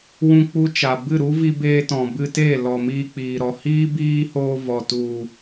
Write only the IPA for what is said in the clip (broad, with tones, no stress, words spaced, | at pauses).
wũ˧k͡pu˧ t͡ʃa˨bɨ˦˨ ɾu˦vi˧beː˧tɔ̃˨ bɨ˧teː˦˨ lɔ˨miː˧k͡piː˨ɾɔ˨ hiː˦ biː˦hoː˧ vɔ˨tu˨